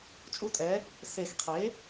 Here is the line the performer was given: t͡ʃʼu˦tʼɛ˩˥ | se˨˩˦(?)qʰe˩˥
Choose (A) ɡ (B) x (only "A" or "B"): B